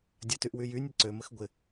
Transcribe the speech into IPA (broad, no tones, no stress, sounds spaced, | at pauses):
dʲ ɐ t y ʔ w y j y nʲ ə ǀ ø m ə x ɡʷ ɪ